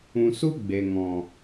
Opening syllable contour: low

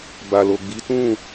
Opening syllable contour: low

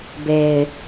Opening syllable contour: low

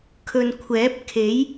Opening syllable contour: low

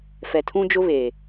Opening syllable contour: low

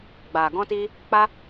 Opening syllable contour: low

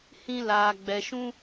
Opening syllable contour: high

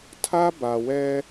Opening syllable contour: high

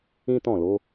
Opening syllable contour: high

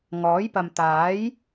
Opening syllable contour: rising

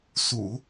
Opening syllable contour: low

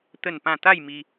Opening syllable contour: falling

